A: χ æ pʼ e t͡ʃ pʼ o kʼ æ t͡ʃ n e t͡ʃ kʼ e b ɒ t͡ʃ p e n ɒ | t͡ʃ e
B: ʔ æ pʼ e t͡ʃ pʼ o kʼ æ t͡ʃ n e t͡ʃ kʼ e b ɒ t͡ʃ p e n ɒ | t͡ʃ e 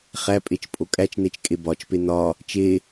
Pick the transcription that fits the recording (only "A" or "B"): A